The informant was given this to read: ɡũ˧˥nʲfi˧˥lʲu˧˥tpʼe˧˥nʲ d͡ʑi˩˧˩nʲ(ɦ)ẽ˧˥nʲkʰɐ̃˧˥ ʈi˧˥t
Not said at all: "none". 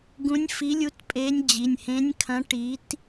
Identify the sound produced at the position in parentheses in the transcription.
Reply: h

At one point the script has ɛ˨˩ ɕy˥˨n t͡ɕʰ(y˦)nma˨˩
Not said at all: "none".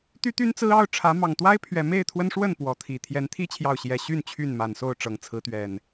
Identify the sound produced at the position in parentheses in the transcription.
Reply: y˥˨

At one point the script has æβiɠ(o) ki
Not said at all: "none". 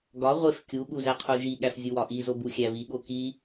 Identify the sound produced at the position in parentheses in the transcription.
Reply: o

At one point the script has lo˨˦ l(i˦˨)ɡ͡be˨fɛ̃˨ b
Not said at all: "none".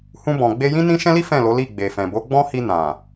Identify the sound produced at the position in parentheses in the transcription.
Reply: i˦˨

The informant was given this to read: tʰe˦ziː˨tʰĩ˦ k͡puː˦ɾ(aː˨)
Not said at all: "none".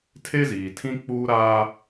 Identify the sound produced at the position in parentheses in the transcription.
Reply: aː˦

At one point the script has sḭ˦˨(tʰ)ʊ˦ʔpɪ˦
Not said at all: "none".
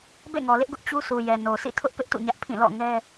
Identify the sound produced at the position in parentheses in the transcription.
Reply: tʰ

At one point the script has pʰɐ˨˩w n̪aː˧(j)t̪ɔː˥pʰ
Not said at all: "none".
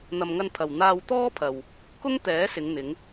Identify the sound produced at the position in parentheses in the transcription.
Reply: w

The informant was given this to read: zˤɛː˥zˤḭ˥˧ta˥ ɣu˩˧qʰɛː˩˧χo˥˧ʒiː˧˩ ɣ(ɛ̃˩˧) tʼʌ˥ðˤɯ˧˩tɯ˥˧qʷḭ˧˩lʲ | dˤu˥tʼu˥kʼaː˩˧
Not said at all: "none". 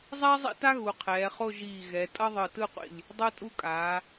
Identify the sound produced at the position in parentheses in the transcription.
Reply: ɛ˩˧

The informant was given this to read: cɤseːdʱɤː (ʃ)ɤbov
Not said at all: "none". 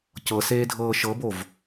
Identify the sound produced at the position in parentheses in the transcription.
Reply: ʃ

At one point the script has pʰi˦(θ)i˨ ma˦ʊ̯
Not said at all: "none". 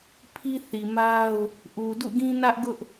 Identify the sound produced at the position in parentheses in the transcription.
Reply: θ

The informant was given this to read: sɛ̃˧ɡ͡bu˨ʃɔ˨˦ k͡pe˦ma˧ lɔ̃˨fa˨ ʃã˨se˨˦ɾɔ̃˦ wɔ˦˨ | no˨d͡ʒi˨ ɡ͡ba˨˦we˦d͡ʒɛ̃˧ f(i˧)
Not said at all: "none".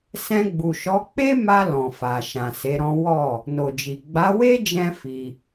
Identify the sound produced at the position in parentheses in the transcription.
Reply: i˧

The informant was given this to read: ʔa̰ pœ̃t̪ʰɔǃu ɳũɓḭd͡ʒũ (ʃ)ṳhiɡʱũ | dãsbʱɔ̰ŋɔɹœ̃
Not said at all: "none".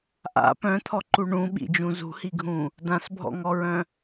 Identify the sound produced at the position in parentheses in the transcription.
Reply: z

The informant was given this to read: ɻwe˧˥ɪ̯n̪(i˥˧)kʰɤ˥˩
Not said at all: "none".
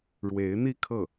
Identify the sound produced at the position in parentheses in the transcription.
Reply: i˥˧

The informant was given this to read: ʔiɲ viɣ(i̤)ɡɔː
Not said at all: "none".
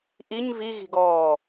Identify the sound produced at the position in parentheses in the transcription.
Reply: i̤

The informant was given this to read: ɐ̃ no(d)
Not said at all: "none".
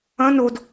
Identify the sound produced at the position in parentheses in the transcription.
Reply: d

